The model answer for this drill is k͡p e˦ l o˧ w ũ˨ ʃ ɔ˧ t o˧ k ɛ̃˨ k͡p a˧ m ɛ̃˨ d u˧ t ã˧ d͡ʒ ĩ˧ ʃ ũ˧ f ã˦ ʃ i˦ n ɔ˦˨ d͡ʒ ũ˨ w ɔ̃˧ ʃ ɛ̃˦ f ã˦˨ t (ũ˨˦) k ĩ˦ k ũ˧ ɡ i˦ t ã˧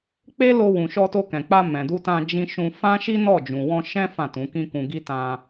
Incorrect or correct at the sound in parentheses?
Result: correct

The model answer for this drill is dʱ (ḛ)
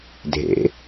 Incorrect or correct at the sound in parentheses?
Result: correct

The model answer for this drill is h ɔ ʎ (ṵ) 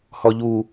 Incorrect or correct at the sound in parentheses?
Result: incorrect: u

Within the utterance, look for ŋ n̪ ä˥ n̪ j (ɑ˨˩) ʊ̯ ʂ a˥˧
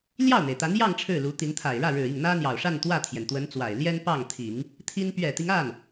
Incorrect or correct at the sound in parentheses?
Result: correct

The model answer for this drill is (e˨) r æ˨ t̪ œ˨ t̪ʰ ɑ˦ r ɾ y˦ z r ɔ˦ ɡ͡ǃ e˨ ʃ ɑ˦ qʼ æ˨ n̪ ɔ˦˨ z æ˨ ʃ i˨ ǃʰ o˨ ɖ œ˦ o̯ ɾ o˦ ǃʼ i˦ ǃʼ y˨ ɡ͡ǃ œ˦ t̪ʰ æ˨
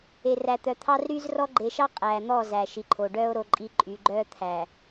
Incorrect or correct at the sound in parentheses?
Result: correct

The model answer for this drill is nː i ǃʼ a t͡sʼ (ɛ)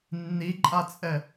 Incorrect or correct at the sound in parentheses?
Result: correct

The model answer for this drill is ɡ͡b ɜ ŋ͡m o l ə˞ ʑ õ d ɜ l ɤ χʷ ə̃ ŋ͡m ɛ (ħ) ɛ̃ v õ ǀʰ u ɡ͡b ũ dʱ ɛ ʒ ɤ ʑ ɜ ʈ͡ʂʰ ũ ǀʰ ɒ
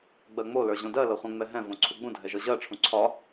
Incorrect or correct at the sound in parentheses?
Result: incorrect: ɦ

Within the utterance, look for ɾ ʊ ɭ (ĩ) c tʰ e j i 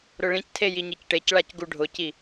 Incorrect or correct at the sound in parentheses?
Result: correct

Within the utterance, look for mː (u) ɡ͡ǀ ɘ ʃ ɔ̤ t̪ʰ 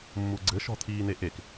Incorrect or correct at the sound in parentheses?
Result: correct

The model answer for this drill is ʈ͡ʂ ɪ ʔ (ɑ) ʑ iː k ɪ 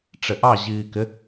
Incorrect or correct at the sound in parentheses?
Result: correct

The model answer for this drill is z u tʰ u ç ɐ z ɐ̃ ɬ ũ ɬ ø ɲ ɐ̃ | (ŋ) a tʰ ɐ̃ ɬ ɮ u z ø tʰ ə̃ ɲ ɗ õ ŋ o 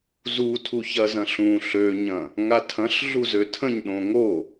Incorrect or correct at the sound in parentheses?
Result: correct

